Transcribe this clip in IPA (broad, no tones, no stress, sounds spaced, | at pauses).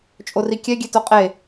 t͡ʃʼ o r i kʲ ɛ ɡʲ e t o qʼ e